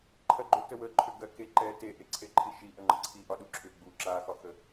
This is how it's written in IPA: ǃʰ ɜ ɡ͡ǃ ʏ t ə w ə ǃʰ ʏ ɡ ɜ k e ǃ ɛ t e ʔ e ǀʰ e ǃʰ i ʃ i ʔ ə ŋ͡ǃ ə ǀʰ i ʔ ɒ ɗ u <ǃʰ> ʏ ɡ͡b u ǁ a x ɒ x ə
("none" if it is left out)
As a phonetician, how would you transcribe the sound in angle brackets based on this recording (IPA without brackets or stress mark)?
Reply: ǁʰ